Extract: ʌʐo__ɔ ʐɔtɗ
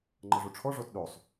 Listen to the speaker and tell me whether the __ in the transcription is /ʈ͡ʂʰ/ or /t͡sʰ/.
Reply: ʈ͡ʂʰ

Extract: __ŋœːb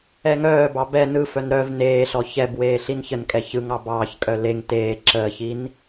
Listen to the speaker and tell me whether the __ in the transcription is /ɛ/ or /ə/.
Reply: ɛ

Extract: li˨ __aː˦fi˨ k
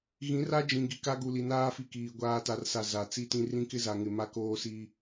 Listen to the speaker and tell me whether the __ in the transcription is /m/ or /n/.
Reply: n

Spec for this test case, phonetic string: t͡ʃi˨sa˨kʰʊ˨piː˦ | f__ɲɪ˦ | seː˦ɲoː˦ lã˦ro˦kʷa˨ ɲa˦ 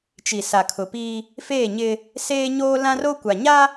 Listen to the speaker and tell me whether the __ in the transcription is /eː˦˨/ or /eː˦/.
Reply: eː˦˨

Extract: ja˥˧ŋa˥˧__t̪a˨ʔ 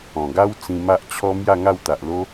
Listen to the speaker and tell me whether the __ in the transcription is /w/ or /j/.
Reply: w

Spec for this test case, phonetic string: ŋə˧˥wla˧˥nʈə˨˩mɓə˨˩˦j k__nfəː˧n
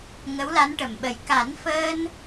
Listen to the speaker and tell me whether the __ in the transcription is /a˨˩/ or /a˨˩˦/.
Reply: a˨˩˦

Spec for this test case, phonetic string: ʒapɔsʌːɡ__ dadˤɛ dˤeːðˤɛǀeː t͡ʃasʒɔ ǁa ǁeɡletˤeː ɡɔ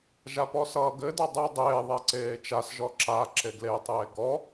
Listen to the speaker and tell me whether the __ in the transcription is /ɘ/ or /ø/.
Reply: ɘ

